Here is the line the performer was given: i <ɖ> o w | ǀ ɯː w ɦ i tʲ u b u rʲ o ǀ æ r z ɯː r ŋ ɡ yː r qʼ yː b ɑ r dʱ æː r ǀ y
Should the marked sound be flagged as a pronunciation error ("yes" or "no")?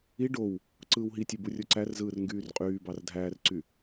no